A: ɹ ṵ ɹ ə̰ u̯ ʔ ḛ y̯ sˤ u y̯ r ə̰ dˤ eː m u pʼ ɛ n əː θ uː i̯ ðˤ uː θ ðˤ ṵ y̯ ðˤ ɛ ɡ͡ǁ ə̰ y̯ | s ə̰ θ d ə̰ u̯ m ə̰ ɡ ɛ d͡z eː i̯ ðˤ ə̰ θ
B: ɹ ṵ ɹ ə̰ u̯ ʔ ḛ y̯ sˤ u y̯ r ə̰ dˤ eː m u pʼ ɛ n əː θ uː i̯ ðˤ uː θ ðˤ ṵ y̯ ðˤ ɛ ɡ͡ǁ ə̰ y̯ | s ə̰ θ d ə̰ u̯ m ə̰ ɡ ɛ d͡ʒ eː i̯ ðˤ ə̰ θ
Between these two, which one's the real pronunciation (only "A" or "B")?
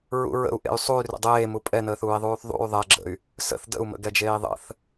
B